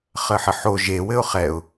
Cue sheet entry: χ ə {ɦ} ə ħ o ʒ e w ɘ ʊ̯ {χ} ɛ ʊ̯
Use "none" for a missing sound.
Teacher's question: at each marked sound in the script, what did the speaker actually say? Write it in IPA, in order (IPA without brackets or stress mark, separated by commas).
ħ, χ